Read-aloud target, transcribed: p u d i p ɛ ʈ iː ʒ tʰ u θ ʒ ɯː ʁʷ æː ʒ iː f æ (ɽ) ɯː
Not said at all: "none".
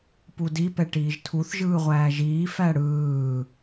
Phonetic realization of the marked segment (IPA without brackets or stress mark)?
ɽ